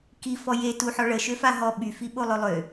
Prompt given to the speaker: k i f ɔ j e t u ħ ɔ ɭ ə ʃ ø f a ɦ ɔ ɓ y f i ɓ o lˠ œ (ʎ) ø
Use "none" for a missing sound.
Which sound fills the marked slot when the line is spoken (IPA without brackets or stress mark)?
lˠ